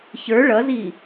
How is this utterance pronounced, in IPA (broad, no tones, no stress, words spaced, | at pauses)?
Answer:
çə˞ ɭʌzi